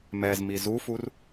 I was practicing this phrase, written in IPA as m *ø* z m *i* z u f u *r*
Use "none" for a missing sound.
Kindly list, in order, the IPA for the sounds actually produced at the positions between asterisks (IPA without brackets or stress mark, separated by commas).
ɛ, i, r